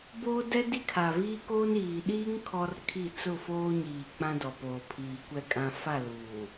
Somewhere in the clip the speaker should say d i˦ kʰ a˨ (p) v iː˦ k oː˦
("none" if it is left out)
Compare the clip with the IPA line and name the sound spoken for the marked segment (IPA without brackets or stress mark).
none